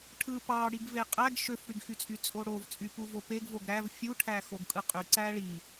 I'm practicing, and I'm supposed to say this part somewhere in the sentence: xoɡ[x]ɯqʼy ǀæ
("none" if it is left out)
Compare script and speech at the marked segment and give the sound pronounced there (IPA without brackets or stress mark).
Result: kʼ